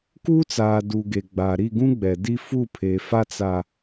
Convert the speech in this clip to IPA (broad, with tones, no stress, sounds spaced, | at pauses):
k uː˦ t͡s aː˨ d u˨ ɡ e˨ ɡ͡b a˨ ɾ i˦˨ ɡ ũ˦ ɡ͡b ɛ˨ d i˦ f u˦˨ pʰ e˨ f a˦ t͡s a˦